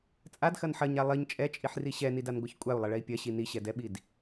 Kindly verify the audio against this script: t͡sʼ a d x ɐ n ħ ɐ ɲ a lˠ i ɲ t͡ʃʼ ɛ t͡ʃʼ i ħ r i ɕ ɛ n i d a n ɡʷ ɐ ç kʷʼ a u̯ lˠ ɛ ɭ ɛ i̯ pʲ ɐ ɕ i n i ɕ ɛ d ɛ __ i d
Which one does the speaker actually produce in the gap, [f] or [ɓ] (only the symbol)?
ɓ